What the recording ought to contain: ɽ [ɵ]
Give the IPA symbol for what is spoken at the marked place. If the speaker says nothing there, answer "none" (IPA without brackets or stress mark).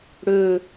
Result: ɵ